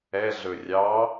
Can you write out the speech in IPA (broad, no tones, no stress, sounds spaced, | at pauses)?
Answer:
ɛ ɮ ɵ rʲ ɑ